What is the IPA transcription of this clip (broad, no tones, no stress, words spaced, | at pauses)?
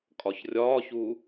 kʼɒçrʲɒːçu